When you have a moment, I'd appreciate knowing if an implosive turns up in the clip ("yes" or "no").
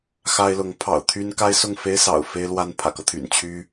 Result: no